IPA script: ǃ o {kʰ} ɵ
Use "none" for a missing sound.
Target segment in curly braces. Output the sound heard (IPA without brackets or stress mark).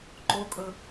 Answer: kʼ